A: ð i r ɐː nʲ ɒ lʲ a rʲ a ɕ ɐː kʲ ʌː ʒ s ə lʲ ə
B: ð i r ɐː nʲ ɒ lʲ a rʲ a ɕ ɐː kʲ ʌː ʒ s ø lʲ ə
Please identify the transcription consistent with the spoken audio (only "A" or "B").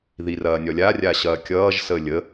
A